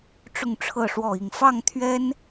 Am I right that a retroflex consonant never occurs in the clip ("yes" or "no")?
no